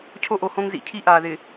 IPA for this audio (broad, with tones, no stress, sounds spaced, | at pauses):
cʰ o˦ ʔ o˨ h õ˦ ŋ z ḭ˨ cʰ i˦ ʔ aː˨ ð ɪ˨